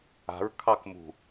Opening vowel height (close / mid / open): open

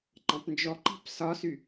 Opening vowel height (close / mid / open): open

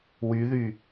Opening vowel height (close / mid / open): close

